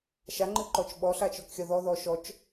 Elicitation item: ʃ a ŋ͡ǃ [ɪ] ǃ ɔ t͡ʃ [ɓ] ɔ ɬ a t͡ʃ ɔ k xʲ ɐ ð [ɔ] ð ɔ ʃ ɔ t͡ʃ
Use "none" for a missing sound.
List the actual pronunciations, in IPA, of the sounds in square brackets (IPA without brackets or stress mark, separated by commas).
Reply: ɨ, ɓ, ɔ